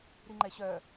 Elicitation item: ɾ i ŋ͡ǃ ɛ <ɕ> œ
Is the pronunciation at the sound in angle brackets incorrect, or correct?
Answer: correct